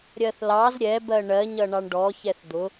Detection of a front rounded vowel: absent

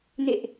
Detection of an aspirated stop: absent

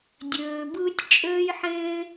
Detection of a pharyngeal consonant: present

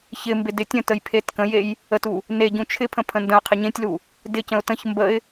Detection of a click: absent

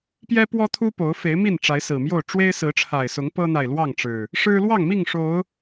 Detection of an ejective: absent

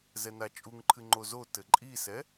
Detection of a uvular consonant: absent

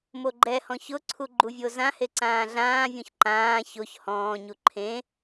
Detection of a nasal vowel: present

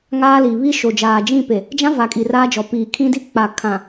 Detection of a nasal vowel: present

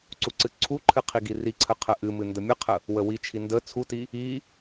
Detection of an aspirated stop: present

